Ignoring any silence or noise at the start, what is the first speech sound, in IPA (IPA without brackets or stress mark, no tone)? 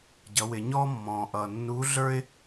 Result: ɟ